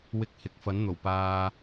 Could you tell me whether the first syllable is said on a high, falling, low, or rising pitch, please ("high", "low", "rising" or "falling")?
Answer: high